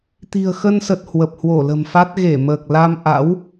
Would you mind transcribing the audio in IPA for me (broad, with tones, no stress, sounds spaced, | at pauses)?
t̪ i̤˨˩ ə̯ x ə˧ n s ə˨˩ t̚ h w ə˨˩ p̚ h w o˧˩ l ə̤˨˩ m f a˦˥ t̚ ɣ e˧˩ m əː˨˩ k̚ l a˧ m ʔ a̰˧˥ w